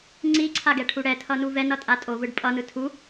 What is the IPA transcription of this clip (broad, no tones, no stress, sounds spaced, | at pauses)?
ŋ͡ǀ i ǀʰ a ɡ ɛ ʈʰ u ɽ ɛ tʰ ʌ n u v ɛ n ʌ tʼ a tʼ o v ɯ ɖ pʼ ʌ n ɯ tʰ u